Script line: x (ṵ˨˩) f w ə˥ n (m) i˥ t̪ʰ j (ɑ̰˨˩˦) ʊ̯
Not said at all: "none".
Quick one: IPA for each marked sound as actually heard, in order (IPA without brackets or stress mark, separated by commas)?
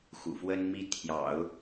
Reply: ṵ˨˩, m, ɑ̰˨˩˦